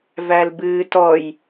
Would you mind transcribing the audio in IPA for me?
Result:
v æ l b ɨː t ɔ j

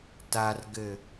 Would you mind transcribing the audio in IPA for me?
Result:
t a r ɡ ɘ

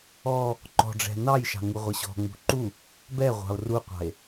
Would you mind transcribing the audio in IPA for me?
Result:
ɔ | ǃ ɔ̤ ɖ͡ʐ ɛ̤ n ɑ j ʃ ɑ̤ ŋ u ʁʷ ɘ ɕ ɔ̤ ŋ͡m ṳ ǃ u | b ɛ ʁʷ ɑ̤ o̯ r u qʷ ɑ̤ e̯

